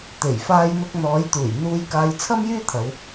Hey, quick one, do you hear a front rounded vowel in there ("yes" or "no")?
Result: yes